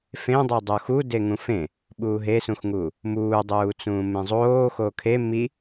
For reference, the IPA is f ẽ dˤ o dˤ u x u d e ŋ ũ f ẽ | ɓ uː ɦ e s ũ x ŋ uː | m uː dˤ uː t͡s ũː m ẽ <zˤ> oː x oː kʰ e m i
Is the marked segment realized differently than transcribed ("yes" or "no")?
no